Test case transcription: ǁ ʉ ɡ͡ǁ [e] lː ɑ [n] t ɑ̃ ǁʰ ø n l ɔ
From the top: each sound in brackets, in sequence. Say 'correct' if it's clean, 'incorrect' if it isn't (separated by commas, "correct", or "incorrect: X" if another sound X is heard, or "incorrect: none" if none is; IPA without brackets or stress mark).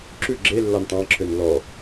correct, correct